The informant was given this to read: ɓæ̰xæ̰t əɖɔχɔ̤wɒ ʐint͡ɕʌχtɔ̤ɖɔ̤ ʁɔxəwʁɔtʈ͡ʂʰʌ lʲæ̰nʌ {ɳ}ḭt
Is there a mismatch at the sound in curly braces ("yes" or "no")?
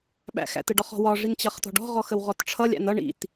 no